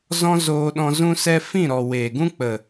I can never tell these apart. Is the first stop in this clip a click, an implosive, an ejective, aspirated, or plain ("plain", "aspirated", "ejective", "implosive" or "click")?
implosive